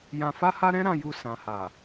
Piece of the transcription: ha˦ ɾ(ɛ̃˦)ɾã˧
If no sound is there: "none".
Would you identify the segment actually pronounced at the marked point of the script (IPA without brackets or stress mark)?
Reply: ɛ̃˦